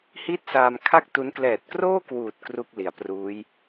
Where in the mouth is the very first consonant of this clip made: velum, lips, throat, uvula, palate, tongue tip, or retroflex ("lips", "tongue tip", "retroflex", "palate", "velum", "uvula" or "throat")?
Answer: throat